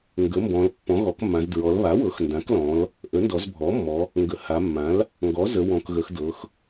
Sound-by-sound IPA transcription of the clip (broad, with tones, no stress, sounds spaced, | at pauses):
ŋ ɡ ə˩˥ m b ɔ̃˩˧ l pː ɔ̃˩˥ ɣ ɔ˩˥ k mː ã˩˧ z d ɹ ɔ˩˧ l β a˩˥ w ɤ˩˥ x n d ã˩˥ k l ɔ̃˩˧ l | ʔ ə˩˥ n d ɔ˩˧ z bʱ ɔ˩˥ mː ɔ˩˧ | ŋ ɡ ə˩˧ h a˩˧ mː ã˩˥ l | ŋ ɡ ɔ˩˥ z ə˩˧ w ɔ̃˩˧ k ɣ ə˩˧ x d ɤ˩˧ x